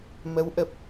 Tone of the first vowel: rising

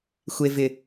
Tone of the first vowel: low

